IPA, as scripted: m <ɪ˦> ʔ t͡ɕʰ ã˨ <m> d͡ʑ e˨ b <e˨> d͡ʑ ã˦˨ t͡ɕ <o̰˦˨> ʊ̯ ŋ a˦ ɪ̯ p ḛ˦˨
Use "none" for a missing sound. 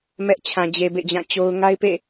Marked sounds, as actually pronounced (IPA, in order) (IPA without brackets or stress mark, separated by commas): ɛ˦, none, ḛ˦˨, o˦